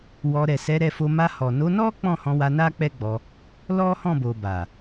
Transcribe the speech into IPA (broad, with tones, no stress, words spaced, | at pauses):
wɔ˧ ɾɛ˨sɛ˨˦ɾɛ˧fo˧ ma˧hɔ˨ no˨˦nɔ˦ k͡pɔ̃˦˨hɔ̃˧wa˧ na˦k͡pɛ˦ɡ͡bɔ˧ | lɔ˦hɔ̃˦˨bo˨ ba˨